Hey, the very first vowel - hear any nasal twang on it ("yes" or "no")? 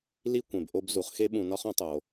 no